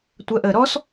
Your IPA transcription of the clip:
tʷ ɜ ʔ əː ɾ ɔ s

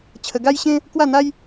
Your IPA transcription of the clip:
t͡ɕʰ ə˧ ɡ a˦ j ɕ ẽ˦ | k w a˥˧ n̪ a˦ j

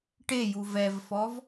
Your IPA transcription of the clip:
ʈ e j u v ɛ v f ɔ v

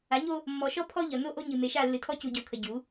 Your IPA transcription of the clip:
a˨˦ ɲ o˦ | mː ɔ˨ ʃ ɔ˦ pʰ ɔ˦ ʎ ʌ˨ n o˦ ʔ o˦ ɲ ɨ˨ m e˨ ʃ a˦˨ lː ɨ˨ tʰ ɔ˦ c u˨ ɟ ɔ˨ kʰ ə˨ ɟ u˨˦

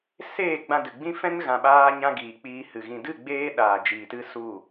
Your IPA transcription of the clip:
s eː˦˨ ɡ͡b ã˧ d ɨ˨ ɡ͡b ĩ˦ f ɛ̃˦ n ɣ ã˨ ɓ aː˧ ɲ ã˧ ɡ iː˨ k͡p iː˧ h ɨ˨ ɣ ĩ˨ d ɨ˦˨ ɡ͡b eː˧ ɗ aː˨ d͡ʒ iː˨ t ɨ˦ s u˦˨

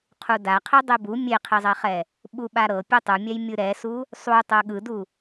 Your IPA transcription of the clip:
qʰ u d a qʰ i dˤ i b u mʲ e qʰ i zˤ ɛ χ ɛ | ɓ u ɓ a ɾ ɤ pʲ e tˤ ɯ mʲ ɛ j mʲ ɯ ɾ ɛ s u | sˤ u tˤ ɤ ɠ ɯ d u

